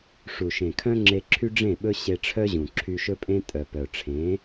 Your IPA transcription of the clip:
ʂu˨ʃẽ˨kʰœ̃˦ ŋ͡ǁe˧ǁʰy˦ɖ͡ʐẽ˦˨ɓɵ˦ ɕe˧ʈ͡ʂʰœ˦ʑũ˨ ǁʰy˧ʃɵ˦pʼẽ˦ tʼœ˨pœ˨ʈ͡ʂʰẽ˨˦

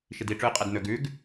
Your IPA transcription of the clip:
ʃid̪i ʈ͡ʂɵə̯qʼædn̪ɵ ɡʉɡ

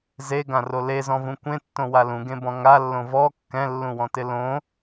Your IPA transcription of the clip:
zeɡãro lezɔ̃vũ kʷẽtːõwa lũɡẽbɔ̃ ŋalːõ vɔ kːɛ̃lːũwɔ̃tɪ lõ

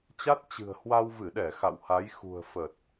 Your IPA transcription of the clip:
t͡ɕa˦˥t̚ t͡ɕɨ̤˨˩ə̯hwa˧w vɨ˧˩ɗɛ˧˩ xa̰˧˨wha˨˦j xṳ˨˩ə̯fə˨˩t̚

